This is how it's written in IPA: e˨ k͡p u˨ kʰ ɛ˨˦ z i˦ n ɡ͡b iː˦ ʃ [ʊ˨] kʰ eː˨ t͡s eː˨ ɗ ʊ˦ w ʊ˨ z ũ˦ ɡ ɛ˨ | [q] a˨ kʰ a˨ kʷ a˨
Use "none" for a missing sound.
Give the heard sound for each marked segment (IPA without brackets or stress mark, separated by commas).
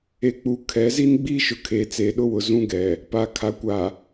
ʊ˨, p